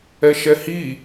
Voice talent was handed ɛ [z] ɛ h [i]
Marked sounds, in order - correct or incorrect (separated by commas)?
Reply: incorrect, correct